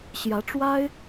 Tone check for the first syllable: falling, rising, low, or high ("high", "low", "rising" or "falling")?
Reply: rising